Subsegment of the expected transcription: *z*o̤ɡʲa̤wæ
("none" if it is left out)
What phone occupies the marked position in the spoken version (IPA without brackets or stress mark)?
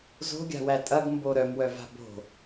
z